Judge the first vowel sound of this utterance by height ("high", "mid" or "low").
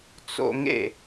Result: mid